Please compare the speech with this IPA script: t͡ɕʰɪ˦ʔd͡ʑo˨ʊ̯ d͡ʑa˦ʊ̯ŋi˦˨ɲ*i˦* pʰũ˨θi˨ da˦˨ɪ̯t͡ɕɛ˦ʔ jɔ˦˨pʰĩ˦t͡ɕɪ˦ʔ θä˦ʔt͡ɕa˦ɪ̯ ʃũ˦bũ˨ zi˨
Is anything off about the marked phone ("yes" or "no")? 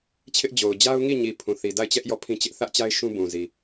yes